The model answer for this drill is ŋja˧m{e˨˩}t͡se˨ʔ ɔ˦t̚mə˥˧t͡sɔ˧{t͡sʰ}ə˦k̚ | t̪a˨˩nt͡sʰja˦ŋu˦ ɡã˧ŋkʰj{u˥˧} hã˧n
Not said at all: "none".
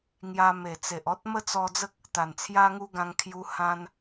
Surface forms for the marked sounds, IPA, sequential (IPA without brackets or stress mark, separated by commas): e˨˩, d͡z, u˧